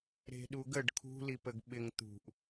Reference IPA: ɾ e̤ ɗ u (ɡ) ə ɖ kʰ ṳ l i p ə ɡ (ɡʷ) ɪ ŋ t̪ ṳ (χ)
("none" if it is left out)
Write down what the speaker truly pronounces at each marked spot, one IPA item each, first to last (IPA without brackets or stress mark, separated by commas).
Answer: ɡ, ɓ, ʔ